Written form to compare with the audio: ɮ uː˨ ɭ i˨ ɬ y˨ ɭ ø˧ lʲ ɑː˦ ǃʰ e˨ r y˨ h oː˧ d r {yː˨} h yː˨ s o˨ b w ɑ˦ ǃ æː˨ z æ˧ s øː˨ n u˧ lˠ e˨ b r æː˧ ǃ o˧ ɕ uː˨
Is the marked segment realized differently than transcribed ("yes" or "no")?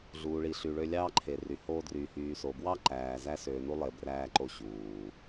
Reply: no